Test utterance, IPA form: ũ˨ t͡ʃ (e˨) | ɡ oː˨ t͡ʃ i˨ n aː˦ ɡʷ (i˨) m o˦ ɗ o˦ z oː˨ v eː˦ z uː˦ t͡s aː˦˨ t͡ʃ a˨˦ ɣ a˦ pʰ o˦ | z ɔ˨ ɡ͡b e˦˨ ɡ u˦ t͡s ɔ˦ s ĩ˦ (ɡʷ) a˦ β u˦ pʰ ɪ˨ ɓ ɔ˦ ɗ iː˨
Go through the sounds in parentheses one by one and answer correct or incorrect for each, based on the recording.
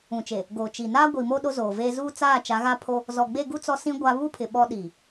correct, correct, correct

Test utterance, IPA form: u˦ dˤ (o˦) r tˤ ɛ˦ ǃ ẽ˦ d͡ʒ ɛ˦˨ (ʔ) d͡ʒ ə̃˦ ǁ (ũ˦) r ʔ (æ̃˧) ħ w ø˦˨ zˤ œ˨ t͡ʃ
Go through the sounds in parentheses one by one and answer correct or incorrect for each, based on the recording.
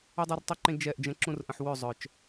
correct, correct, correct, incorrect

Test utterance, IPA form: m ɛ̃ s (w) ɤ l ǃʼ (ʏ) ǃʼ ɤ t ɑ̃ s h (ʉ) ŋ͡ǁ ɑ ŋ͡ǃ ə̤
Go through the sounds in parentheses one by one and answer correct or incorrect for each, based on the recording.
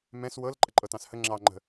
correct, incorrect, incorrect

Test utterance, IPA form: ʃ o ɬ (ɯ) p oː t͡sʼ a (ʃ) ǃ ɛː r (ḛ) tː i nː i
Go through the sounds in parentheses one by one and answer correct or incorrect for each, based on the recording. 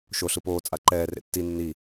correct, incorrect, correct

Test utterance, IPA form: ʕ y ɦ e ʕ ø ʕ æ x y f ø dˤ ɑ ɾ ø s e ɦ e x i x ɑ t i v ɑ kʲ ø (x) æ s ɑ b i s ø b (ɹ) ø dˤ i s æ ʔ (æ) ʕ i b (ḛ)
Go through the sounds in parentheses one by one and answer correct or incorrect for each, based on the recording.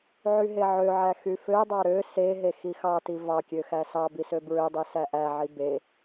correct, correct, correct, incorrect

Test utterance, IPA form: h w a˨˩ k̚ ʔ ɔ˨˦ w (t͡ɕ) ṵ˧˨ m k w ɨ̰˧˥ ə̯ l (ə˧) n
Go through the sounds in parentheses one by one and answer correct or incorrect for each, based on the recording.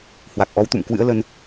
incorrect, correct

